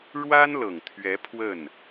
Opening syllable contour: high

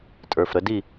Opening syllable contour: low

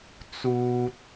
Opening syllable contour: high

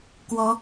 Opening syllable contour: rising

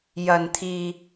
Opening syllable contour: low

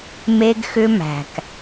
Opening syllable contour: high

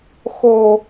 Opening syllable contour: high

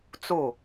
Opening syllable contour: falling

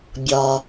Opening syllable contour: low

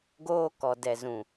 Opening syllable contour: high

